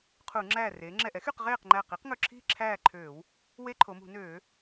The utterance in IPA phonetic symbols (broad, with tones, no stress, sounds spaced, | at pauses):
qʰ u˧˩˧ ŋ͡ǁ æː˧˩ r eː˩˧ ŋ͡ǁ ɛ˧˩ ʔ ɛ˩˥ x y˥˨ q ʁ eː˥˨ q ŋ͡ǃ æ˧˩ q i˩˥ q ŋ ɵ˧˩ ǁʰ i̤˥˨ ǁʰ æː˥˨ ǃʰ øː˧˩˧ w | w e˦ ǃʰ o˩˧ m ṳ˧˩˧ n øː˧˩˧